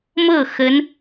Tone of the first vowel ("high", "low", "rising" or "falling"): falling